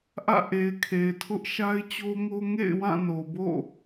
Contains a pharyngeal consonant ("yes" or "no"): no